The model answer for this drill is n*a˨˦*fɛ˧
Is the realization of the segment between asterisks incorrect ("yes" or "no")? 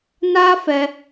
yes